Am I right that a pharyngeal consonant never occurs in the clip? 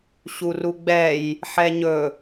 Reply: no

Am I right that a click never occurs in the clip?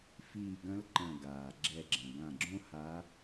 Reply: no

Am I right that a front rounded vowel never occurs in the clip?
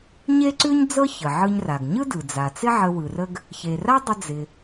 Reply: yes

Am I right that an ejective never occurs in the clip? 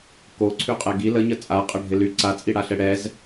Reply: no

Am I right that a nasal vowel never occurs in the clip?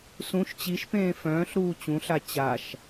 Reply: no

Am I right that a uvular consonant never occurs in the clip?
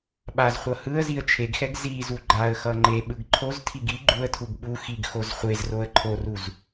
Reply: no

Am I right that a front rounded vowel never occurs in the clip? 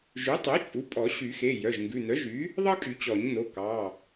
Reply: no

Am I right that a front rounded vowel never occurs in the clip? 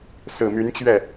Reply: no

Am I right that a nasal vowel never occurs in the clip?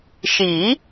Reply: yes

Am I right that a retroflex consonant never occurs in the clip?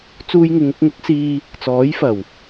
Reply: yes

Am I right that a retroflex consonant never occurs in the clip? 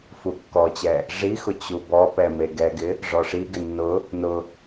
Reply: no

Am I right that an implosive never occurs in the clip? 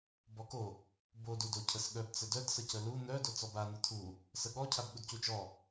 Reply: no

